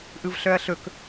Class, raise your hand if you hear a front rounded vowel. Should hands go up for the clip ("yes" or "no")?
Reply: yes